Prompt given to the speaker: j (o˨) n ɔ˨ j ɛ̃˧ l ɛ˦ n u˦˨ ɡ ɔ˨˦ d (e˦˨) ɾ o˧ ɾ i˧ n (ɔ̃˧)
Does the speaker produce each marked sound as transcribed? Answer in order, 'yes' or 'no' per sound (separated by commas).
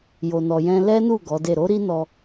yes, yes, no